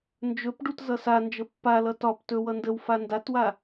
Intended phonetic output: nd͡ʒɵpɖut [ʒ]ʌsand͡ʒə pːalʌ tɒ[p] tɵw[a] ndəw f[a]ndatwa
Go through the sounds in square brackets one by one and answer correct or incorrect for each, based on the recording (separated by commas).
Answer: incorrect, correct, incorrect, correct